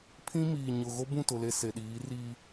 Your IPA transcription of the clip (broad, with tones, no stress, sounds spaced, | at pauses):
pʰ ĩ˦ m iː˨ ɲ ʊ˨ ɣ o˦ b ũ˦˨ t ʊ˨ l e˨ s e˨ ɗ iː˨˦ r iː˦